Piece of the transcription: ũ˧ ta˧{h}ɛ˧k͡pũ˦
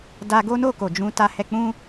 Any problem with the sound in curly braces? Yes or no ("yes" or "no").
no